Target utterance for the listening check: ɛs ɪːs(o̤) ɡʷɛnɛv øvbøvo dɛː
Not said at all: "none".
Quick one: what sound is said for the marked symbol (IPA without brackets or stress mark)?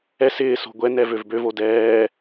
o̤